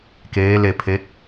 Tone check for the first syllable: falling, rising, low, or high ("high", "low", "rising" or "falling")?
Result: rising